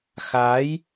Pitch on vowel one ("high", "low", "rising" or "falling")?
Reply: rising